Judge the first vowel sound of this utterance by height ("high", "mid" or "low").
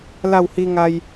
low